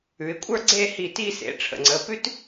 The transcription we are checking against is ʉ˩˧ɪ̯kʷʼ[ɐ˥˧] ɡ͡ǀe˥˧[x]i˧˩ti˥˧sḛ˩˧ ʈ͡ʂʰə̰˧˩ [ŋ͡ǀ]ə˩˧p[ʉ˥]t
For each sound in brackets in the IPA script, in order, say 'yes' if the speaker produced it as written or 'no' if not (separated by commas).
no, no, yes, yes